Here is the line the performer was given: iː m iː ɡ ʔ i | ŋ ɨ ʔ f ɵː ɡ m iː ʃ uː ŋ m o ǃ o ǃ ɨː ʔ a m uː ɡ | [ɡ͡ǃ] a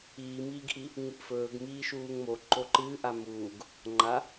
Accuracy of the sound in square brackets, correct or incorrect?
incorrect